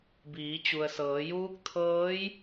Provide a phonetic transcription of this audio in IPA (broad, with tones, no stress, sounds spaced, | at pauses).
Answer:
b iː˩˧ t͡ɕ u˩ ə̯ s ɤː˩˧ j uː˧˥ k̚ t̪ʰ ɤː˧˥ j